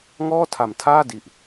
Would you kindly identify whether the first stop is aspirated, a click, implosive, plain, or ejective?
aspirated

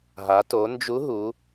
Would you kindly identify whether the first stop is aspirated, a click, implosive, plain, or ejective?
plain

